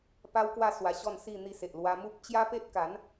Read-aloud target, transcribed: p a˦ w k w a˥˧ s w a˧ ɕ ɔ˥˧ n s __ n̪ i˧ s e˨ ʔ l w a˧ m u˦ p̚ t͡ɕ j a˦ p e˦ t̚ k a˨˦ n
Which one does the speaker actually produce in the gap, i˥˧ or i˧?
i˥˧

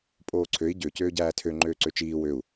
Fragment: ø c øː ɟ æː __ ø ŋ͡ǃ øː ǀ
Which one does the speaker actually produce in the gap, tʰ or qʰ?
tʰ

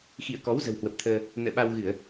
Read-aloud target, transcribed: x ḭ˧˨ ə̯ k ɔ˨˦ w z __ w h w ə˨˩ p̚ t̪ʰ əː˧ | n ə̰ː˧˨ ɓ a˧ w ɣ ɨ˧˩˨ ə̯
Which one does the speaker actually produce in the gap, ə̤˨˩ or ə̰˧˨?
ə̤˨˩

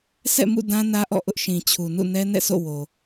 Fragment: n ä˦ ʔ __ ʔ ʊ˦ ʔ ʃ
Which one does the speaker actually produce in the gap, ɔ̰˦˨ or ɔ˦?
ɔ̰˦˨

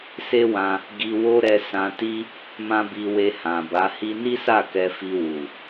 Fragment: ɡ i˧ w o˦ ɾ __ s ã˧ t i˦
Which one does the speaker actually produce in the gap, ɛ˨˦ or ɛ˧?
ɛ˧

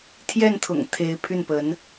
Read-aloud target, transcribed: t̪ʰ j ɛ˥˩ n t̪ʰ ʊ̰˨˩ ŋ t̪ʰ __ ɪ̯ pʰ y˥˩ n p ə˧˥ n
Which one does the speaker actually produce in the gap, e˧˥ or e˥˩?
e˧˥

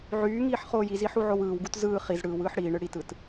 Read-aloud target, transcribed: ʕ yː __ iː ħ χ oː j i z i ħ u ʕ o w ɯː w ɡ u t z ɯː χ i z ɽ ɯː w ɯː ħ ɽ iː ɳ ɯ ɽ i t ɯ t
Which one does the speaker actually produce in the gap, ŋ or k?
ŋ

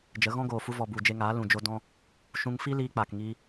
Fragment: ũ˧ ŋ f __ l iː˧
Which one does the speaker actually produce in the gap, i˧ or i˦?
i˦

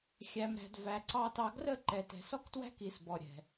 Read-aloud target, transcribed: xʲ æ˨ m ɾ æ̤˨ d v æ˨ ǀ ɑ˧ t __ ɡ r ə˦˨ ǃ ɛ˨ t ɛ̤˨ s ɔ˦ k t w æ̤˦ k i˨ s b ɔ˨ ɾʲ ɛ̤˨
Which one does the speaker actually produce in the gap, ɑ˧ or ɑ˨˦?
ɑ˧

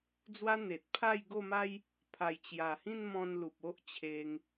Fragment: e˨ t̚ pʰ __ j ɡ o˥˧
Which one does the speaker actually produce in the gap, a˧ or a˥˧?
a˥˧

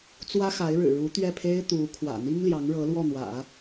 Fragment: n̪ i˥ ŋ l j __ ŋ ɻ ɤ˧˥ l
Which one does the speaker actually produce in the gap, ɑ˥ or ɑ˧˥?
ɑ˧˥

